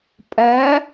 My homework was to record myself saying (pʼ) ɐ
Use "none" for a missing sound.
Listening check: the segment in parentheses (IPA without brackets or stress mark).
pʼ